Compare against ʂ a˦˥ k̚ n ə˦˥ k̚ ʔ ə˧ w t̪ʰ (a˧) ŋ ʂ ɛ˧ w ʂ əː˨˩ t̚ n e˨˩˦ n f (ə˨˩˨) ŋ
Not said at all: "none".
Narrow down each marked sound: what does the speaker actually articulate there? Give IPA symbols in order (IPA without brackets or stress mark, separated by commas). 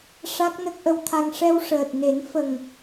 a˧, ə˨˩